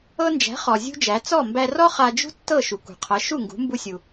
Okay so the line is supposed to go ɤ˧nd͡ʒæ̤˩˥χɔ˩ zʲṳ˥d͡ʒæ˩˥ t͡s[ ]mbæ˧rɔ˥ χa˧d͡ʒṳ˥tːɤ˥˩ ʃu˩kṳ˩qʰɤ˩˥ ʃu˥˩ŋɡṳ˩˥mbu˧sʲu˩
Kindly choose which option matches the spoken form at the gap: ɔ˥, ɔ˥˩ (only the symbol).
ɔ˥˩